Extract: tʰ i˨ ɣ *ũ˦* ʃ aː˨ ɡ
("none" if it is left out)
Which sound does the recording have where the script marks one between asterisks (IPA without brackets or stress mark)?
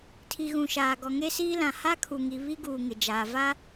ũ˨